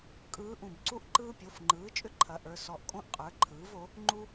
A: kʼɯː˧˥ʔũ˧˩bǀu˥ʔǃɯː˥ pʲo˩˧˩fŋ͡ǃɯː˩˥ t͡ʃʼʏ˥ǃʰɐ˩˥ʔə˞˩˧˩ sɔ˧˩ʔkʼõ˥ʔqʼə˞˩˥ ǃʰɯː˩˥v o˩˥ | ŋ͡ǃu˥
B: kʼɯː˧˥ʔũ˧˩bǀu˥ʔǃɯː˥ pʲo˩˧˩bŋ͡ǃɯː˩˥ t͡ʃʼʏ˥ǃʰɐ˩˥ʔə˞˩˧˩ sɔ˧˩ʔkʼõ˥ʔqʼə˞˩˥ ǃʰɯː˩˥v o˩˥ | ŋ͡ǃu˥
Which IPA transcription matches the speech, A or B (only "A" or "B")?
A